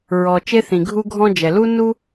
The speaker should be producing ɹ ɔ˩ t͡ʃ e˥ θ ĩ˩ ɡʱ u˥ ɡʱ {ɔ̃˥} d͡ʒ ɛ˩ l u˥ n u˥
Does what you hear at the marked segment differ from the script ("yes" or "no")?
no